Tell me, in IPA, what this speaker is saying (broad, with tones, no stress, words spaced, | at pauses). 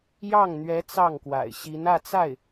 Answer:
jɑ˥˩ŋn̪ɥɛ˧˥ t͡sɑ˥˩ŋkwa̰˨˩ɪ̯ɕi˧˥nä˥˧ t͡sa˥˩ɪ̯